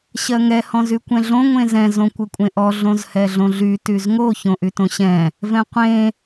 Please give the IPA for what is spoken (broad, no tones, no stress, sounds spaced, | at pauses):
ɕ ɜ ŋ ɛ h ɔ̃ z y kʷ ɛ̃ ɮ õ ŋʷ ẽ z ɛ̃ z õ kʷ ɘ kʷʼ ẽ ʔ ɔ ɮ õ z h ɛ ɮ õ ɮ y t y z ŋ o ç õ ʔ y t õ ɕ ɛ̃ | v ɛ̃ qʷ ẽ